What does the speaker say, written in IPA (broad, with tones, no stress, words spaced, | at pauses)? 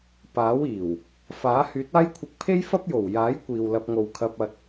paː˨˥wiː˨˩w | faː˨˥ hyː˨˥t̚aː˥jkʷʰɪ˧k̚pʰe˥j fɐ˥p̚jo˨˩w jaː˨˥jkʷiː˨w lɐ˧p̚ŋo˨w kʰɐ˧p̚ɐ˧t̚